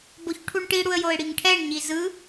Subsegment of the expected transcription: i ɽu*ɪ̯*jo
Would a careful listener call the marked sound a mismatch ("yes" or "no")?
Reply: yes